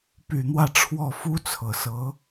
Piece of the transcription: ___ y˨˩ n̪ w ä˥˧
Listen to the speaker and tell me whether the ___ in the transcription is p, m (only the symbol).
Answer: p